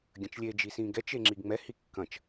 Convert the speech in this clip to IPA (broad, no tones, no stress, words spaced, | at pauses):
ɡʲɐ̃t͡ʃlʲe d͡ʒisĩɡɛt͡ʃ eŋ͡ǁiɡŋ͡mɛ hikːɐ̃t͡ʃ